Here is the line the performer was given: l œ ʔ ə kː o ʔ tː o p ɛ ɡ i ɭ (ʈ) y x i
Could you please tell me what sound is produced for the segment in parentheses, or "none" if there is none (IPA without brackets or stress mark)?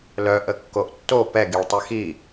tˤ